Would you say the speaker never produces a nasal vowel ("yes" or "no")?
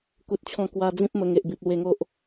no